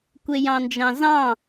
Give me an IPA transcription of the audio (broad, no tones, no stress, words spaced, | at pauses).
kʷejɑ̃nd͡ʒɑ̃zɑ̃